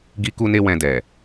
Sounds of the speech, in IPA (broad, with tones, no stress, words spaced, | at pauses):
ɡi˦ku˦ne˦wɛ̃˧ dɛ˨